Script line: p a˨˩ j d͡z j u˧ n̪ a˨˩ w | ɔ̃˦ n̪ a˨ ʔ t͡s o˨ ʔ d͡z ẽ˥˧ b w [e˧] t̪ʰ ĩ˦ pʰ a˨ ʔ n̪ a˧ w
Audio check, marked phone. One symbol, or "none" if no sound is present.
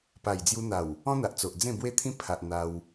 e˦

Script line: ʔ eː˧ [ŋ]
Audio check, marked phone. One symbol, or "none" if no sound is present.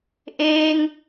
ŋ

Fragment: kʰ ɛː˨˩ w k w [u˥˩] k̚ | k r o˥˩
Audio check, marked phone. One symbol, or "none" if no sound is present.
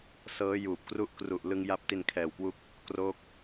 u˦˥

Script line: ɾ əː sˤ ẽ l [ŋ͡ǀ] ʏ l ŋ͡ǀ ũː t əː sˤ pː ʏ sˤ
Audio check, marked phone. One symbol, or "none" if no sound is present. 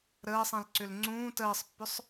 ǀ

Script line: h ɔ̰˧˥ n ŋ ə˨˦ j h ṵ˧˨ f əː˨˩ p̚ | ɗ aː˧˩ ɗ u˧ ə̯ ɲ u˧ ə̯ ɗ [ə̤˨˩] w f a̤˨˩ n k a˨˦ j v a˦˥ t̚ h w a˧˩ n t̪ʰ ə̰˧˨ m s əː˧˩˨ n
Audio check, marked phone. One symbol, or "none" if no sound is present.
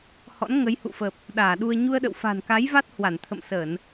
ə̰˧˨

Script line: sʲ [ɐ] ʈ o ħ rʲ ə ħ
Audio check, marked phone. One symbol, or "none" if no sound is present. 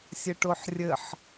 ə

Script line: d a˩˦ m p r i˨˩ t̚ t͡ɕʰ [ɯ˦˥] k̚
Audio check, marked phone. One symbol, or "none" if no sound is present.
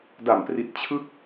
ɯ˦˥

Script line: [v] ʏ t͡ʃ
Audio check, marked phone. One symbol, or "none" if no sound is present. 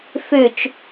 f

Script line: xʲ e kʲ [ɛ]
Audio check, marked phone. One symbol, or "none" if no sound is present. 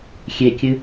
ɨ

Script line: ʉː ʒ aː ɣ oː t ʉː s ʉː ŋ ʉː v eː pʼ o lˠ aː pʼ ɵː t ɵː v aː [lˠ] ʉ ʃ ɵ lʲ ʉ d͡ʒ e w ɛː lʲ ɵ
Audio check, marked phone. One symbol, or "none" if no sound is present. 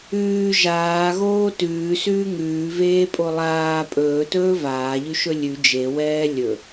ʎ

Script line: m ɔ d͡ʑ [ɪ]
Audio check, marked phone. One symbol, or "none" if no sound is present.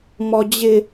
ɪ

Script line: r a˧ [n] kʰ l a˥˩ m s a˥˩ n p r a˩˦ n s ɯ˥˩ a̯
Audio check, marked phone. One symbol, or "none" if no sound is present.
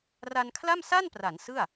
n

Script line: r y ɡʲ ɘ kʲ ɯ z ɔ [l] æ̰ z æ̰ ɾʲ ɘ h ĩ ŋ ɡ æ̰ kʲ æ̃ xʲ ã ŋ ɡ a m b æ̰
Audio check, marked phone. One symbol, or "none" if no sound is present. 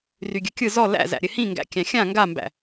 l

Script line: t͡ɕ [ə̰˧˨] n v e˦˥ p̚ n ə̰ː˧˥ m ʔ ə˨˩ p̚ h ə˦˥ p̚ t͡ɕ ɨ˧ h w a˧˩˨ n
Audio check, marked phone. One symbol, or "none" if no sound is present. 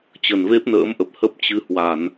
ə˨˩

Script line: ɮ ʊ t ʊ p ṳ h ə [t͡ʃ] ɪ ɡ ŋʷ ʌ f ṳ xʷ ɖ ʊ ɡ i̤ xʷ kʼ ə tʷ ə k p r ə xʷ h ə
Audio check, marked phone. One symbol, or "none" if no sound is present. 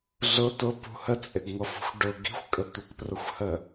t͡sʼ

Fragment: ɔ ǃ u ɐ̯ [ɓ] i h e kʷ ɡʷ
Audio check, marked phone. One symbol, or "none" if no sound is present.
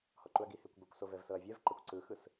ɡ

